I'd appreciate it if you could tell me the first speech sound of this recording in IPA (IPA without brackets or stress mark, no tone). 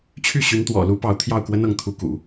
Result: t͡ɕʰ